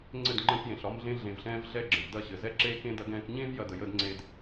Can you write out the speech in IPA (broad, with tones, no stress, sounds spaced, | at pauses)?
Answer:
ŋ͡ǀ ɘ˦˨ d ŋ͡ǃ ə̃ː˧ k j ẽ˨ ɬ ɒ˧ m ɮ ẽ˧ ɮ ẽ˨ v ɬ ɛ̃ː˧ v ɮ ɛ˦˨ ɡ͡ǁ ə̃˨ v d ɐ˦˨ ɕ ɘ˨ z ɛ˦ ǁ eː˦ k ẽ˦ d ɐ˧ ɡ ɛ̃ː˧ k ɲ ẽː˦ v j ɐ˧ d ə˧ j əː˦ d ŋ͡ǀ eː˦ d